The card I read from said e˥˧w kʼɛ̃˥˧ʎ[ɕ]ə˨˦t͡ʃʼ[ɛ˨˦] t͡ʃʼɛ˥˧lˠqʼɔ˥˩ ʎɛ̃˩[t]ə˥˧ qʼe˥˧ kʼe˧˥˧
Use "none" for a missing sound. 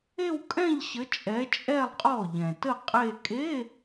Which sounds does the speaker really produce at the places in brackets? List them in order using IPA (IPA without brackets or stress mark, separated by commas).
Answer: ɕ, ɛ˨˦, t